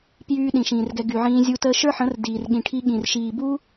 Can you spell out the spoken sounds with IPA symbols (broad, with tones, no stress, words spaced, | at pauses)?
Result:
pjyː˦ɗĩ˨ʃĩː˨rɡɛ˧ ɡy˨ʕĩː˧zʲu˧ təː˧ʃə˞˦ħə̃˨˦r diː˨rɠĩ˨ʈʰi˧ ɠĩ˨r ʃiː˨bu˦